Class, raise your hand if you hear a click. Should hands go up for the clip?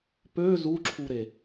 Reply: yes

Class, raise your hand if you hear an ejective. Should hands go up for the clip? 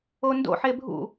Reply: no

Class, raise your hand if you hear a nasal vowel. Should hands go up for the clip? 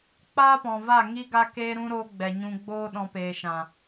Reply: yes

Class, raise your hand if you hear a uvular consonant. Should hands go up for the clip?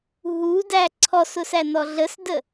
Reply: no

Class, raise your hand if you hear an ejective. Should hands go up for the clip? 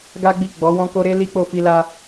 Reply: no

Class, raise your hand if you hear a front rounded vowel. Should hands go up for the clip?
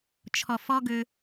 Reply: yes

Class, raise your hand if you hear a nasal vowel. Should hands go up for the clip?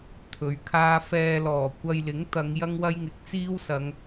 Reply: no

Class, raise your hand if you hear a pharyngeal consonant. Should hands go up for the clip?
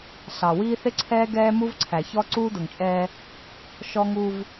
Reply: no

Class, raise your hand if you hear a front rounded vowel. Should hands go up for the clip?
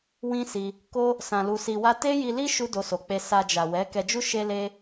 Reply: no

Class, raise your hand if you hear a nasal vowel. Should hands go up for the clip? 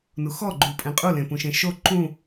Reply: yes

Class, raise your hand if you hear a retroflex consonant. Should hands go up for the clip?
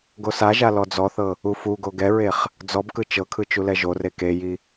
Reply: no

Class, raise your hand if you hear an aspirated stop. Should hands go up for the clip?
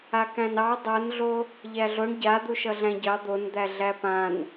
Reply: no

